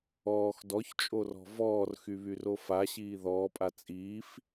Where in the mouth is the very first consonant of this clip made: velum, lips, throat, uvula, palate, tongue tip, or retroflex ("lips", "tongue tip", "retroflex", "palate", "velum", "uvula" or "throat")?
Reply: velum